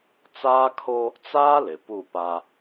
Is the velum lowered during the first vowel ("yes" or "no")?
no